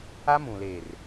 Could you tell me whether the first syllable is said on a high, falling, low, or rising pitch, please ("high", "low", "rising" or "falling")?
high